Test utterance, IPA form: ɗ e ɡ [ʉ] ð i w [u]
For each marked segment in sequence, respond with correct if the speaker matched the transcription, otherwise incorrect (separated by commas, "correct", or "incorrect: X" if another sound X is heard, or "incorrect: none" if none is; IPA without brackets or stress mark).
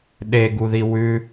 incorrect: u, incorrect: ʉ